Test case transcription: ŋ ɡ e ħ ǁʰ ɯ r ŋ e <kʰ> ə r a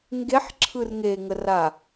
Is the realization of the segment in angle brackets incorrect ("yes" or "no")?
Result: yes